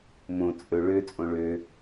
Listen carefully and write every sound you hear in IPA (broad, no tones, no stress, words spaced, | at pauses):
mõ t͡sʼɵ ɭøt͡sʼõ ɭø